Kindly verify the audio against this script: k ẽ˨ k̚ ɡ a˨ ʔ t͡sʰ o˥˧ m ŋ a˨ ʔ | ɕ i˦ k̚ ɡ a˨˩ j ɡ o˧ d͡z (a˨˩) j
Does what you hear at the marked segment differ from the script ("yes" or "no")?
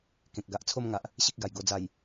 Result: no